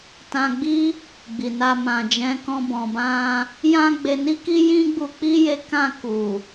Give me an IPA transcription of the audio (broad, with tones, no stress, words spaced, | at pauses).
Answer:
tã˧ɡ͡bi˦ | ɡ͡bi˨na˧ mã˨d͡ʒɛ̃˨˦kɔ̃˧ bɔ̃˨bã˧ | jã˦ɡ͡be˧ni˦ki˦ jĩ˦ɡ͡bu˧k͡pi˦je˧ kã˧ ku˨